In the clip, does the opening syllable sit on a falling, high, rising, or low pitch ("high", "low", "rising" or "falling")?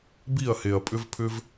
falling